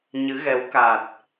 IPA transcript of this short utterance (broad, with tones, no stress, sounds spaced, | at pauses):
ɲ ɨ˨˦ ɣ ɛ˨˦ w k a˨˩ t̚